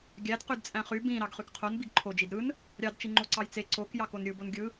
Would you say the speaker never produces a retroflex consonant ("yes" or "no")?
yes